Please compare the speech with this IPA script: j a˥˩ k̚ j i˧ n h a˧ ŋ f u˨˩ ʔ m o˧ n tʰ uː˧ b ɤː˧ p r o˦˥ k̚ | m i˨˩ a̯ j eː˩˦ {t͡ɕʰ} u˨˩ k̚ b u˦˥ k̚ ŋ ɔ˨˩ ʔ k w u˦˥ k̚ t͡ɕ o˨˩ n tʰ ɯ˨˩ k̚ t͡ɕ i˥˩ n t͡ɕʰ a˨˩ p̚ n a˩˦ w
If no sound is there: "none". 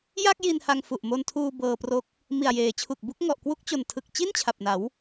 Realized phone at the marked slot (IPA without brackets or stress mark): t͡ɕʰ